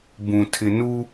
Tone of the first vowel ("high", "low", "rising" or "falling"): low